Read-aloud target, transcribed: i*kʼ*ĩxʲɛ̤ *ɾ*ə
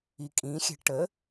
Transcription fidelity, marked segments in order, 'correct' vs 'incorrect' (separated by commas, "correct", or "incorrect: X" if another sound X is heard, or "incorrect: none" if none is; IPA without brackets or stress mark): correct, incorrect: ʈ